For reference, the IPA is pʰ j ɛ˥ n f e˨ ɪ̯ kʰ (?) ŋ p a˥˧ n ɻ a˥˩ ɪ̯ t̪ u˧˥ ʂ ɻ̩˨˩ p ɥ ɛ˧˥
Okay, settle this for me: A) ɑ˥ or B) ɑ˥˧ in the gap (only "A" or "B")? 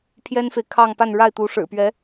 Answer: B